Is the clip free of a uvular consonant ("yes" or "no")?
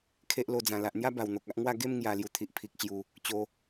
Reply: yes